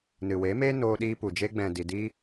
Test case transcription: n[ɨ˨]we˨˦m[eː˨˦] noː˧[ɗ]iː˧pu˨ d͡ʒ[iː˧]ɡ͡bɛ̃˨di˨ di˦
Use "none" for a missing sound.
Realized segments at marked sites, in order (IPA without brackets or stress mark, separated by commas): ɨ˨, eː˦, ɗ, eː˧